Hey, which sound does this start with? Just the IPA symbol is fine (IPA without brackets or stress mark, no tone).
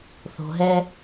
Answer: θ